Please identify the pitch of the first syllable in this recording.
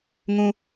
high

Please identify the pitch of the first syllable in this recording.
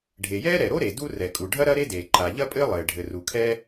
low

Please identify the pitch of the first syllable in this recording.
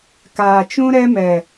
low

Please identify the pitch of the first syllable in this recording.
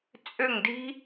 falling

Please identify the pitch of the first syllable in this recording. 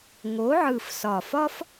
rising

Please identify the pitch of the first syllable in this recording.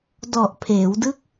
low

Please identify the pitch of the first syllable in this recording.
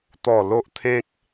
falling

